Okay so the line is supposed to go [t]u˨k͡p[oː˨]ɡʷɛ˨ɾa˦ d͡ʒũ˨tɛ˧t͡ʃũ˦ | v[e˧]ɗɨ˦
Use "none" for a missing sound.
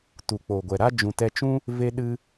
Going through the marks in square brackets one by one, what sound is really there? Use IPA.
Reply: t, oː˨, e˦

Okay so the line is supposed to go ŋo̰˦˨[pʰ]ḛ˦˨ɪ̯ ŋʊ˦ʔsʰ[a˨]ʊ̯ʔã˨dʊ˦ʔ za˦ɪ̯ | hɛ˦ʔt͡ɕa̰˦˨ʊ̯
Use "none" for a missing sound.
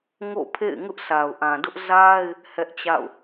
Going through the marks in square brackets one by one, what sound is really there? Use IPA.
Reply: pʰ, a˨

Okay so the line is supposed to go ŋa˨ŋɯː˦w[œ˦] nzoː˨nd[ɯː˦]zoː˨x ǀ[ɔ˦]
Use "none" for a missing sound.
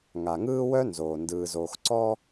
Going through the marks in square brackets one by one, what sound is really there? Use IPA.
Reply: œ˦, ɯː˨, ɔ˦

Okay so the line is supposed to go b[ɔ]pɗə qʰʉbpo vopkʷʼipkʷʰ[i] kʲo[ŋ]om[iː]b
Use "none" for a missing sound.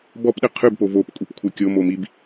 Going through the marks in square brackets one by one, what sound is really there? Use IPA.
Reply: ɔ, ɨ, m, i

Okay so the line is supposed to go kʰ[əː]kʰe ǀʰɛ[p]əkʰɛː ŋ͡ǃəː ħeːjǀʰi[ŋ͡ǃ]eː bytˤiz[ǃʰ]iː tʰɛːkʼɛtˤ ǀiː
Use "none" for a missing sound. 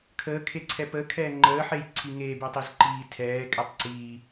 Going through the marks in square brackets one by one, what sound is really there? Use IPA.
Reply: əː, p, ŋ, ǃ

